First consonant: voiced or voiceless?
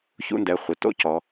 voiceless